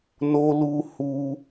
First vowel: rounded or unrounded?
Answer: rounded